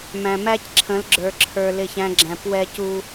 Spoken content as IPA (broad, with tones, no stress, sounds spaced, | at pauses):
m æ̃˨ m æ˦ c ǁʰ ə̃˨˦ l ɡ͡ǁ ə˞˨ ǁʰ ə˞˨ l ɪ˦˨ ç æ̃˦ ɡ͡ǁ æ̃˨ p w ɛ˦ c u˦